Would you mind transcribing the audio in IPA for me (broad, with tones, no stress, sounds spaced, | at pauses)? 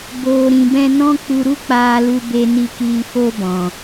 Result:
b oː˨ ɾ ĩ˨ b ɛ̃˧ n ɔ̃˦ k͡p u˧ ɾ u˦ k͡p aː˧ l u˧ b e˧ n i˧ k iː˧ f o˦ b ɔ̃˨